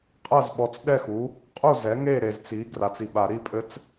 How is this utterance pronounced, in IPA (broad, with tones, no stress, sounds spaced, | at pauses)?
qʼ ɐ˥˩ z ɓ ɔ˨ t͡s ɗ ɛ˥˩ x u˩˥ | qʼ u˥˩ z ɛ˩˥ ŋ e˥˩ ɾ e˨ z t͡s i˩˥ ɡ r a˨ t͡s i˨ ɓ a˨˩˦ ɾ i˦˥ pʼ ɘ˦˥ t͡s